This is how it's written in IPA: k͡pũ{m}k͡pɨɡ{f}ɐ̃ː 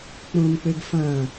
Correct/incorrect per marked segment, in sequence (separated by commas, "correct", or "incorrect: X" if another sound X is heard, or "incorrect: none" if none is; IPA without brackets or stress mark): correct, correct